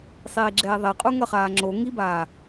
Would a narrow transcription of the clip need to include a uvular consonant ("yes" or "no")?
yes